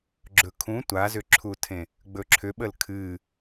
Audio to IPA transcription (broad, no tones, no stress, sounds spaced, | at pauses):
ɡ͡ǁ ɵ kʰ ũ tʷ a z ʏ ǁʰ u tʰ ẽ | ɡ͡b ɵ ǁʰ ʏ ɓ ə l kʰ ɨː